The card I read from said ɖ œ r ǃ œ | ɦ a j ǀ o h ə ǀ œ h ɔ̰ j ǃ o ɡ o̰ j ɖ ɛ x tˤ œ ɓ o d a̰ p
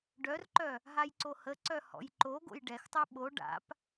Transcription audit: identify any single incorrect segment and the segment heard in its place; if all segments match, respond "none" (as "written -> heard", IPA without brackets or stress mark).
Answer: d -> ɖ